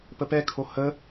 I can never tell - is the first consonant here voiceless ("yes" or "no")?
yes